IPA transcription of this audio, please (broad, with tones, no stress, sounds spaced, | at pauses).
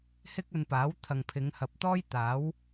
h ɪ˥ k̚ ɵ˧ n p aː˨˥ w t̪ʰ ɐ˨ ŋ pʰ ɪ˨˧ ŋ h ɐ˨ p̚ t̪ ɔː˥ j t̪ aː˨˥ w